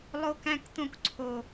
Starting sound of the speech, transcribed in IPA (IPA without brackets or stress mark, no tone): lˠ